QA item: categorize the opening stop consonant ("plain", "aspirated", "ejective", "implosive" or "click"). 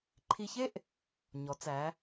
click